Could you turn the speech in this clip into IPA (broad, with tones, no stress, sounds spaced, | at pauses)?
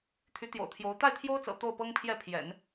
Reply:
t̪ʰ y˧˥ t̪ j o̰˨˩ ʊ̯ t̪ʰ j o˧˥ ʊ̯ t̪ a˥˩ ɪ̯ t̪ʰ j o˥ ʊ̯ t͡s ɤ̰˨˩ t̪ o˥˩ ʊ̯ p ɤ˥ ŋ pʰ j ɛ˥˩ pʰ j ɛ̰˨˩˦ n